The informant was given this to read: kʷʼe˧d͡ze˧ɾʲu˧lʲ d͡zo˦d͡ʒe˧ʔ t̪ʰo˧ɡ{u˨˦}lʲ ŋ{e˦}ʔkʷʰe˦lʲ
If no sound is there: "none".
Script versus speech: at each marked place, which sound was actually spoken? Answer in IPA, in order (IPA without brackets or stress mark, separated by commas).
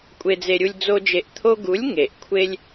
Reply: u˨˦, e˨